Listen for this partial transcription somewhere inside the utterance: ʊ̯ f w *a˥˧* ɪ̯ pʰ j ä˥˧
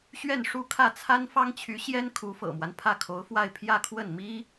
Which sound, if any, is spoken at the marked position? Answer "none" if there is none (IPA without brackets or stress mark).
a˥˧